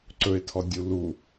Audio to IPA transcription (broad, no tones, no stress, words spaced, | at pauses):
ǀɵɪ̯tʰɔdʲu lu